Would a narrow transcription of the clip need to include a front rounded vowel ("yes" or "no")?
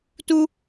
no